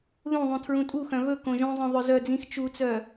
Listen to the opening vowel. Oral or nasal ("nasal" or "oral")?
nasal